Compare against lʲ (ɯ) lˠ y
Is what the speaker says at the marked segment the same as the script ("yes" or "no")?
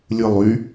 yes